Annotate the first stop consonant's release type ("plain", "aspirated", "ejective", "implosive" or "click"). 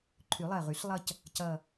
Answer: click